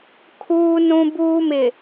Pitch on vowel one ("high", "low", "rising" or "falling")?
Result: high